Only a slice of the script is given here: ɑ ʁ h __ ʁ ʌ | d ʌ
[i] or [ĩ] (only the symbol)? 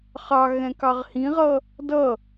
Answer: ĩ